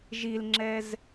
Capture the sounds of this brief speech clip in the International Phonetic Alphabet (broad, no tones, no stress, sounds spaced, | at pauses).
ʒ i l ŋ͡ǁ ɛ z